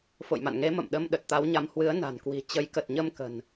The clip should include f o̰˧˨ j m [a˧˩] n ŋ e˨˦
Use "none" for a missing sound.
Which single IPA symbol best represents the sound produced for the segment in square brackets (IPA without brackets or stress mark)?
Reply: a̰˧˨